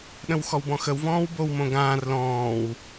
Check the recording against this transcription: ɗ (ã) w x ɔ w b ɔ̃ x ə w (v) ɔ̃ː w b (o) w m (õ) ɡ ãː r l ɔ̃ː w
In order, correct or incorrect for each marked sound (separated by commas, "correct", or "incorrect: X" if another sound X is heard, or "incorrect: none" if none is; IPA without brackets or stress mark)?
incorrect: ə̃, correct, correct, correct